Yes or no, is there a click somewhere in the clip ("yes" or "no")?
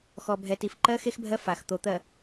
yes